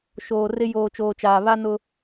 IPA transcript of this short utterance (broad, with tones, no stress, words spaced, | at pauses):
ʃoː˨rɪ˦ joː˨t͡ʃoː˨t͡ʃaː˨ βa˦nʊ˦